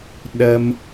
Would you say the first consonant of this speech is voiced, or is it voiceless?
voiced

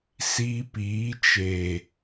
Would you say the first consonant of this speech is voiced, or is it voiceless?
voiceless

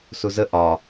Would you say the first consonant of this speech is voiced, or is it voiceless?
voiceless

